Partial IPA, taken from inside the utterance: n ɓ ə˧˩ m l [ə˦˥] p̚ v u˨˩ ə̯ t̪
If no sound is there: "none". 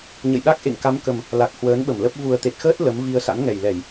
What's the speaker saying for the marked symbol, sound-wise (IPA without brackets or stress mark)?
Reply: ə˦˥